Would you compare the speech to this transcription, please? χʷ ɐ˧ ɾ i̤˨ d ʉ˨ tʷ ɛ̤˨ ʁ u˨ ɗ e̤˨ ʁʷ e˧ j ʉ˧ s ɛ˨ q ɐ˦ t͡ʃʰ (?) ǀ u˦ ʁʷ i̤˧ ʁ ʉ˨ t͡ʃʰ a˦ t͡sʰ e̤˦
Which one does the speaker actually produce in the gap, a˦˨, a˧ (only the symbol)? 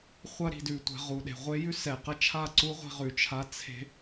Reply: a˦˨